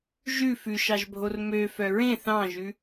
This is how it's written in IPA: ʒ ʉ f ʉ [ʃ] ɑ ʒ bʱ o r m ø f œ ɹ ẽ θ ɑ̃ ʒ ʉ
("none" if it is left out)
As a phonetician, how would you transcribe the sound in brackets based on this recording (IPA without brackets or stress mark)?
ʃ